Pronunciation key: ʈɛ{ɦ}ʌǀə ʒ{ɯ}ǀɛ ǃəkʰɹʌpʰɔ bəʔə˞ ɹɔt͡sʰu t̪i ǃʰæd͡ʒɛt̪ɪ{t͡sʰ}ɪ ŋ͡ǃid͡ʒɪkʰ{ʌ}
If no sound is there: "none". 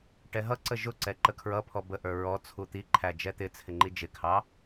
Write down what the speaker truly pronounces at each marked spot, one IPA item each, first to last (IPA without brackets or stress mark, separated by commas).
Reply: ɦ, ʊ, t͡sʰ, ɑ